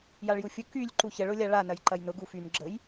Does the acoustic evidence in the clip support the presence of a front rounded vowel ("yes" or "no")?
yes